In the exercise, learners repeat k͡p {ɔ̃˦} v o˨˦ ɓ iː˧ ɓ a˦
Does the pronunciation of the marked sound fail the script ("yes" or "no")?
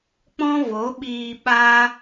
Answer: no